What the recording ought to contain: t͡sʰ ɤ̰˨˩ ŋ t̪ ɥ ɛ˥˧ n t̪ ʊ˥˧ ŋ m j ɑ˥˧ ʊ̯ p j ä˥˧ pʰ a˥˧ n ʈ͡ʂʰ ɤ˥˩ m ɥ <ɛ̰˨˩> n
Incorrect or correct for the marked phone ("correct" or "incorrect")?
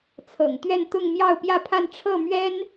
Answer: incorrect